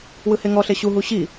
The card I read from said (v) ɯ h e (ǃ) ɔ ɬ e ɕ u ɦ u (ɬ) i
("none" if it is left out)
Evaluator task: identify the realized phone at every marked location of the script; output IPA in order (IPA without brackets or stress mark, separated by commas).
w, ŋ, ɕ